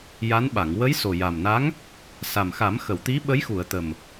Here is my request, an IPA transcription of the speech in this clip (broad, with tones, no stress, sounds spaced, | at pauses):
j a˧˥ n ɓ a˨˩˨ ŋ w ə˧˥ j s o˨˩ j a˨˩ m n a˧˥ ŋ | s a˨˩ m x a˨˩˦ m x ə˨˩˨ w t̪ i˧˥ ɓ ə˧˥ j x u˨˩˨ ə̯ t̪ ə˨˩ m